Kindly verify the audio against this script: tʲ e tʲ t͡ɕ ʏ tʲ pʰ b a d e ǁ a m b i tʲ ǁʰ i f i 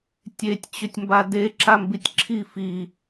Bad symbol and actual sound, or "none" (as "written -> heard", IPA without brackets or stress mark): pʰ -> m